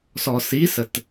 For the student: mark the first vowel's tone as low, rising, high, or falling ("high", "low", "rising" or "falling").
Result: low